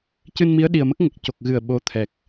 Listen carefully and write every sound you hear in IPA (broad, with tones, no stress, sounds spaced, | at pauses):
c ɨ˧ n m i˧˥ ə̯ ɗ i˨˩ ə̯ m ə˦˥ k̚ ŋ ə˨˩ k̚ c o˨˩ k̚ ɣ ɨ˨˩ ə̯ ɓ o˧˥ t̪ʰ ɛ˨˩ k̚